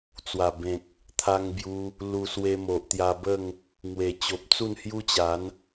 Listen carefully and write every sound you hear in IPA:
t͡s w a˨˩ b ẽ˨ k̚ | t̪ʰ a˧ ŋ b j u˧ | l u˧ s w e˧ m o˨ ʔ t̪ j a˧ b ə˥˧ ŋ | ŋ w e˨˩ t͡ɕ o˨ p̚ t͡s u˥˧ n h j u˦ t͡ɕ a˨˦ n

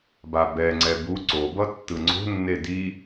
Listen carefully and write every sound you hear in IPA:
b a b ɛ ŋ͡ǀ ɛ b u ǀ o b ʌ tː ɯ ŋ͡ǀ o̤ nː e d i

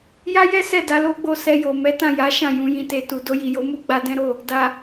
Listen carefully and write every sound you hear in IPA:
j a˦ j ɛ˦ s ɛ˦˨ d a˨˦ l o˦ ɡ͡b o˧ s ɛ˧ j o˨ m ɛ˨˦ t ã˦˨ j a˨˦ ʃ ã˦˨ j ũ˨ j ĩ˨ t e˨ t u˨ d o˧ j i˨ j o˨˦ m u˦ ɡ͡b a˧ d ɛ̃˦ ɾ o˦˨ | d a˨

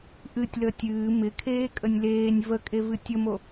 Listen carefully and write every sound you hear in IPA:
ʔ ɨ tʲ l əː tʲ ɨː m ɪ kʰ eː kʼ ə nʲ l eː nʲ v ə kʼ e v ɨ tʲ ə m o

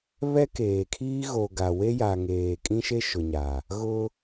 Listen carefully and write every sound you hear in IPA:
β ɛ˦ k eː˨ kʰ iː˦ ɣ o˨ ɡ a˨ w e˦ j a˨ ŋ eː˨ kʼ ĩ˦ ʃ e˦ ʃ ʊ˨ ɲ a˨ | ɣ ʊ˦

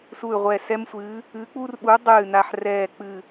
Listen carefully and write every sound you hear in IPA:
s u˦˨ y̯ ʁʷ ɛ˦˨ s ɛ˥ m sʷ ɨ˧˥ | ɨ˧˥ k͡p u˥ r ɓ u˧˥ dˤ ɨː˦˨ n a˦˨ ħ r ɛː˦˨ k͡p ɨ˦˨

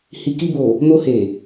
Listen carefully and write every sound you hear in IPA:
h i˨ k i˧ b o˨ | n o˧ h e˨

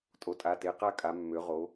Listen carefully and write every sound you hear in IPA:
tʼ o˩˧ tʼ a˩˧˩ t e˩˧˩ q a˥˨ kʼ a˩˧ mː ø˩˧ ʁ o˩˧

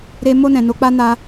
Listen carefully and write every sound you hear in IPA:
ɾ e˦ m o˧ n ɛ̃˨ n o˨˦ k͡p a˦ n a˧

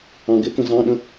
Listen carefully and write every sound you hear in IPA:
ɑ̃ ɡ ɪ k ə̃ z ɑ̃ ɗ ə̃

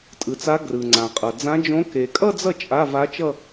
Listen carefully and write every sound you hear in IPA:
tʼ ɯ˨ t͡s a˧˥ ɡ r ɯ˨ ŋ͡ǀ ã˨ qʼ ʌ˨ d͡z ã˧˥ d͡ʒ õ˧˥ k e˨ kʼ ʌ˥˧ d͡z ʌ˥˩ t͡ʃʼ a˧˥˧ v a˧˥ t͡ʃ ʌ˥˧

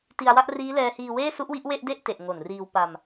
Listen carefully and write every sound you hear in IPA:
t i˧ a̯ w a˥˩ ʔ r iː˦˥ l ɛː˧ h iː˧ w eː˥˩ s u˦˥ ʔ w i˦˥ ʔ w e˥˩ ʔ d e˥˩ ʔ t e˨˩ ʔ ŋ o˨˩ n r iː˧ w p a˧ m

